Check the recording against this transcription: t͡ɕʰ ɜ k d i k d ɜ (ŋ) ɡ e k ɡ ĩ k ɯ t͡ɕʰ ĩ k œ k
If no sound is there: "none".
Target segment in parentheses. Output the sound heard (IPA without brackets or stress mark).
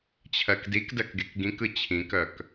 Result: k